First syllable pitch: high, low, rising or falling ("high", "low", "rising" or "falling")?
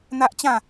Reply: high